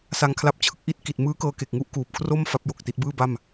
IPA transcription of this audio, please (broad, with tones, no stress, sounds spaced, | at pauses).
s a˧ ŋ kʰ l a˦˥ p̚ t͡ɕʰ ɯ˥˩ k̚ ʔ i˦˥ t̚ k i˨˩ t̚ m ɯː˦˥ k ɤː˧ k e˨˩ k̚ ŋ u˦˥ ʔ k uː˨˩ p̚ kʰ r o˥˩ m f a˦˥ p̚ j o˨˩ k̚ t i˦˥ t̚ b ɯː˥˩ b a˥˩ m